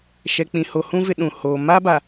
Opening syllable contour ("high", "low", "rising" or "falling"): low